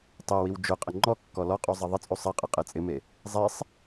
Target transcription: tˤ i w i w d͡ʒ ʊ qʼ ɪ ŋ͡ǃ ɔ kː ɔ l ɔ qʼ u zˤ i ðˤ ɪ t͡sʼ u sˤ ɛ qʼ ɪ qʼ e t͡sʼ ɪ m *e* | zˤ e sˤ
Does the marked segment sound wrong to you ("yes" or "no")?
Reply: no